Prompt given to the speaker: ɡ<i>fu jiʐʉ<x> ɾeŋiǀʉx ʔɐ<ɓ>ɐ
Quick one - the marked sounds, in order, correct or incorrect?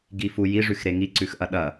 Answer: correct, correct, incorrect: ɗ

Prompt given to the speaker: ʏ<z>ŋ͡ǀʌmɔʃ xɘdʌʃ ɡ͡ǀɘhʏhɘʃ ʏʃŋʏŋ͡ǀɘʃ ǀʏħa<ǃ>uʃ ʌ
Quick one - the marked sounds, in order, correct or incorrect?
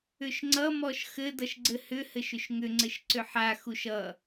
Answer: incorrect: ʃ, incorrect: x

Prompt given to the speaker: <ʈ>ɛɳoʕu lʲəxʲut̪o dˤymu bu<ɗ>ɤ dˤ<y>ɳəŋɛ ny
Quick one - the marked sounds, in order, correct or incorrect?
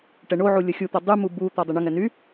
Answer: correct, incorrect: t̪, correct

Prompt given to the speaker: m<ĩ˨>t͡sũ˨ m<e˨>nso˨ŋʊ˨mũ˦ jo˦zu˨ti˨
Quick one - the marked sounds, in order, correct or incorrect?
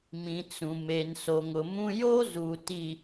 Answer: correct, correct

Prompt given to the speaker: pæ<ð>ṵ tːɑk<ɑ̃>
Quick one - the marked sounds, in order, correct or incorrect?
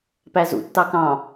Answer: incorrect: z, correct

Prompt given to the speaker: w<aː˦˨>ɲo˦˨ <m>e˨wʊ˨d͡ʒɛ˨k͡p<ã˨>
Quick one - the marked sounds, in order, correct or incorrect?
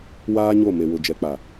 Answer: incorrect: aː˦, correct, incorrect: a˨

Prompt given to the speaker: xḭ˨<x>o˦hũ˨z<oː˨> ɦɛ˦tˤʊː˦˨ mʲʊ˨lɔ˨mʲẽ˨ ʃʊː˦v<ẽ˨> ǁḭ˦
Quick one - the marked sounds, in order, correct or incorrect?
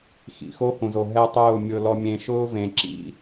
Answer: correct, incorrect: o˨, correct

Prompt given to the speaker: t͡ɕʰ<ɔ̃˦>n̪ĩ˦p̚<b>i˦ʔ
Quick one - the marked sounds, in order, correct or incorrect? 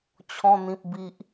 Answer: correct, correct

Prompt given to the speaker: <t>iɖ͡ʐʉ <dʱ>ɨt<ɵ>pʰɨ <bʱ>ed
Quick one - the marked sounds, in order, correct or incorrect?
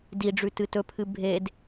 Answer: incorrect: d, incorrect: t, correct, correct

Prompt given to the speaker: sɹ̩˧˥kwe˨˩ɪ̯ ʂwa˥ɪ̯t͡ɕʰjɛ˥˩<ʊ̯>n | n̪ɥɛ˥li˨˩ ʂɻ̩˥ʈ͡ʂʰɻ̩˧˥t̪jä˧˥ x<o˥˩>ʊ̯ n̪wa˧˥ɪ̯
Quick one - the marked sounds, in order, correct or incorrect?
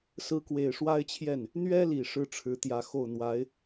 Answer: incorrect: none, correct

